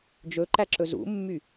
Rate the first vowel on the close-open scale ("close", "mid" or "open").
mid